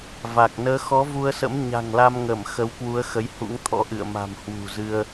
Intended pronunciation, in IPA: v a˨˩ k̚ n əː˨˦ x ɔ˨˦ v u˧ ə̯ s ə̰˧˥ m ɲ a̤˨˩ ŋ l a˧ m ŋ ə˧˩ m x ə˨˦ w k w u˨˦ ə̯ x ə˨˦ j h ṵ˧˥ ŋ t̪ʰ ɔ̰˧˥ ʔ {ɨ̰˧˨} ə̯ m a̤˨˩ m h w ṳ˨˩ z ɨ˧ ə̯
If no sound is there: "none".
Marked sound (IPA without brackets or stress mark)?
ɨ̰˧˨